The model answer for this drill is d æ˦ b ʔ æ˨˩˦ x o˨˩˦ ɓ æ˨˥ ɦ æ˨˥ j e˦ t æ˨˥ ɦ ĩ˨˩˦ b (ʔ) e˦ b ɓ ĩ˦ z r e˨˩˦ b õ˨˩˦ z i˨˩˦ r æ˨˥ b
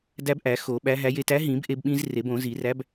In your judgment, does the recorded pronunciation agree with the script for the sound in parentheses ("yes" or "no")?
yes